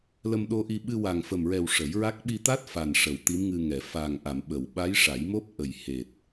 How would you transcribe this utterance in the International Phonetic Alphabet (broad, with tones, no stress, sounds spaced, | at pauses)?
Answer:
l ə˧ m ɗ o˧ ʔ i˧ ɓ ɨ˧ w a˨˩ ŋ f ə˨˩ m ɹ ɛ˨˩ w ʂ ə˨˩˦ j ɹ a˦˥ k̚ ɓ i˧ t̪ a˦˥ t̚ f a˨˩ n ʂ ə˨˩˨ w t̪ i˧˥ m ŋ ɨ˧ ŋ ɛ˨˩˨ f a˨˩ ŋ ʔ a˨˩˨ m ɓ ə˨˩˨ w ɓ a˧˥ j ʂ a˨˩˦ j m o˦˥ p̚ ʔ ə˨˩ j h e˨˩ t̚